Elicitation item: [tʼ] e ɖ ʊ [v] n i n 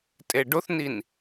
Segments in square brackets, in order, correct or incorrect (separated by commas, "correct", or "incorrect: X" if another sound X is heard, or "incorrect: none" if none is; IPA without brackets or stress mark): correct, incorrect: θ